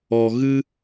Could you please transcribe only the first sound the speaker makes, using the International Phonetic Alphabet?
ɔ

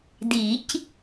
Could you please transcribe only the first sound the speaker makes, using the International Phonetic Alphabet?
d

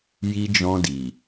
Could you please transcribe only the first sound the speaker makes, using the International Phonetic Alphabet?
j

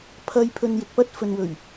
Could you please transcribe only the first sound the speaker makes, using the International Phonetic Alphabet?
pʰ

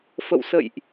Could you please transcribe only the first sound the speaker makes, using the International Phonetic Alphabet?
f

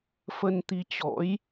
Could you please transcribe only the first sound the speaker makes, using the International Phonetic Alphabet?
f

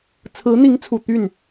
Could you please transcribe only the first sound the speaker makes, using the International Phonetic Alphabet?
t͡sʰ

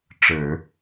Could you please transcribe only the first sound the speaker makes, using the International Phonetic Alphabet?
ʈ͡ʂ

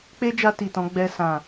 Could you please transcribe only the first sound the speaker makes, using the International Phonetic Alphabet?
k͡p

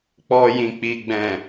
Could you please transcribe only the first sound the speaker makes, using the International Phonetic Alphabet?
k͡p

